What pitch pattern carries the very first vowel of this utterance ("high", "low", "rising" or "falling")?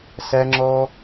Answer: high